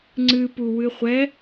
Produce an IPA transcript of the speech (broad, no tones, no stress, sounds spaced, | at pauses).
ŋ͡ǀ ɨ p u w ɨ χʷ ɛ